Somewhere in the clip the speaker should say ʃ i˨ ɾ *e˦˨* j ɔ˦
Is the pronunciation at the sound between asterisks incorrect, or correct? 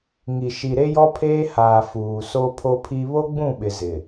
incorrect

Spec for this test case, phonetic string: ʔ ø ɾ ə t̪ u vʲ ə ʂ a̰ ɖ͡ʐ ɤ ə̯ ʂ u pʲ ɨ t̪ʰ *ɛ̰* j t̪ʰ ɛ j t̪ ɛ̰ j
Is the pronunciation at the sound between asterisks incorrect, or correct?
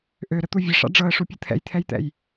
correct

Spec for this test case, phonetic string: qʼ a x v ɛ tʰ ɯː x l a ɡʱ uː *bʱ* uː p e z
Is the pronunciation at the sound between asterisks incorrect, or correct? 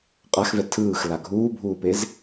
correct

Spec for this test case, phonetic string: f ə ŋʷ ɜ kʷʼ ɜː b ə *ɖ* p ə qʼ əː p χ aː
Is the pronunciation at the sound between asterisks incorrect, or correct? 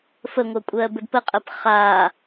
incorrect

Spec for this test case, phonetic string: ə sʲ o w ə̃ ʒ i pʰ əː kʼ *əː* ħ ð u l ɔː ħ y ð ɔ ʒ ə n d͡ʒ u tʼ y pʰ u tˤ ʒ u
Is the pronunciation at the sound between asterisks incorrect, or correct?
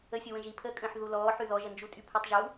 incorrect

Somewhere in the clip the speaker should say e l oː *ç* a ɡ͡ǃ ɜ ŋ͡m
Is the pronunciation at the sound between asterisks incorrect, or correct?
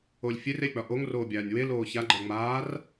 correct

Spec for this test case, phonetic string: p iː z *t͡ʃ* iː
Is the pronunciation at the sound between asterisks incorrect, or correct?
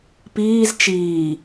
correct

